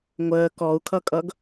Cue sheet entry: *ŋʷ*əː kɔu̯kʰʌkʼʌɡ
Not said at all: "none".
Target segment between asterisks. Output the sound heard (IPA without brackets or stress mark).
ŋʷ